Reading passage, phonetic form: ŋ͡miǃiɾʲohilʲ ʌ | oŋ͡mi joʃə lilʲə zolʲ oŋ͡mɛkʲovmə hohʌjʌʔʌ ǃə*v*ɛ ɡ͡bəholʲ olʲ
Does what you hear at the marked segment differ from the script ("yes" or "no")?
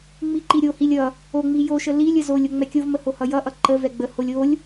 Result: no